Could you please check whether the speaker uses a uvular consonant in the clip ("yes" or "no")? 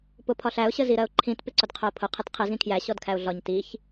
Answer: yes